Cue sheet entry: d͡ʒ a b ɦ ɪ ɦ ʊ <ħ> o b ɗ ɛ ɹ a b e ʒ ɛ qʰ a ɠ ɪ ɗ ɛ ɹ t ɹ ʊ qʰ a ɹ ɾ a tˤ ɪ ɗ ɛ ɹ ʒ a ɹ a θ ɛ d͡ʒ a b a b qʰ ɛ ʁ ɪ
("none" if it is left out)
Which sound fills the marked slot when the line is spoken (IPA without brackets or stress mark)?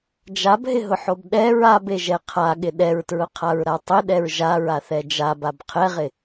ħ